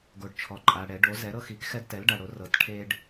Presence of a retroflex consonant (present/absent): present